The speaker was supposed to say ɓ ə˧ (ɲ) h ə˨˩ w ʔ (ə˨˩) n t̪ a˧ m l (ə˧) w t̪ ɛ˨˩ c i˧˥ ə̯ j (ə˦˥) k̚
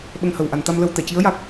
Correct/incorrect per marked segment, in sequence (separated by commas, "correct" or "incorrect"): incorrect, incorrect, correct, incorrect